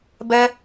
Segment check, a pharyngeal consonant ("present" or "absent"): absent